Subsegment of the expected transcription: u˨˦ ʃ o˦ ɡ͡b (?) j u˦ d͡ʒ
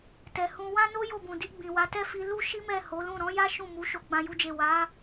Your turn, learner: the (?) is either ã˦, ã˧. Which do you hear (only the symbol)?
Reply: ã˦